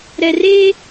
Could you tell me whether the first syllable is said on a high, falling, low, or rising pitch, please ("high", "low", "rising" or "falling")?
low